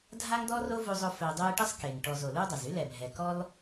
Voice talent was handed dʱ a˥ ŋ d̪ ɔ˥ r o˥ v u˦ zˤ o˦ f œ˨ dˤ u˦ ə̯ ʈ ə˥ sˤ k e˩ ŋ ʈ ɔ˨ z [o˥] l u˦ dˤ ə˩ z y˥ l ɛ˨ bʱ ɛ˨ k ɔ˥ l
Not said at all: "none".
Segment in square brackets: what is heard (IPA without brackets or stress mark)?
o˩